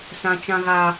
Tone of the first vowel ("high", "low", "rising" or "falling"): high